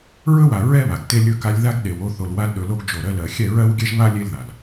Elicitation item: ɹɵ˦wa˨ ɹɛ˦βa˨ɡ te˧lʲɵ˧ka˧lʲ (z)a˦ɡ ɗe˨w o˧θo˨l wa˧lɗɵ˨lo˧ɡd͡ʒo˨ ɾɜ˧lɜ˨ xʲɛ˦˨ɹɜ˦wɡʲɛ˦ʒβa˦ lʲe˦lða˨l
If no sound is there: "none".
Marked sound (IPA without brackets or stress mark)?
ð